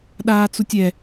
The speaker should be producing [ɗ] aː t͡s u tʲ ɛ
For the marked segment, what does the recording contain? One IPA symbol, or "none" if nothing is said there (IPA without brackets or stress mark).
ɗ